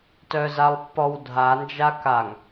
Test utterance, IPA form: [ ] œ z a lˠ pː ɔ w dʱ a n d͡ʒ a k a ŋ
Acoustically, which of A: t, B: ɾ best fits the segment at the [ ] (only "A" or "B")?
A